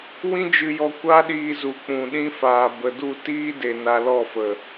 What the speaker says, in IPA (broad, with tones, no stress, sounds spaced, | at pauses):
w ĩ˦ d͡ʒ ɨ˧ j ɔ˧ kʷ a˦ ɗ iː˧ z u˨ k͡p ũ˨ ɗ ĩ˧ f aː˨ b ə˨ d u˦˨ t iː˦ d e˨ n a˧ l ɔ˦˨ f ə˨